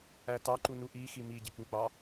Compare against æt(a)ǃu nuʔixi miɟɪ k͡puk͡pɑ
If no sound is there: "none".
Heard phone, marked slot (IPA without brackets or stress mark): ɑ